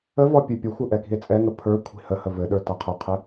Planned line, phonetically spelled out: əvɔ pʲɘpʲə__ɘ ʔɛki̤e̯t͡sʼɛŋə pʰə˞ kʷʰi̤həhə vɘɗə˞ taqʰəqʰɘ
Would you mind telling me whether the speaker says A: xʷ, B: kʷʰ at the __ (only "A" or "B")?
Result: A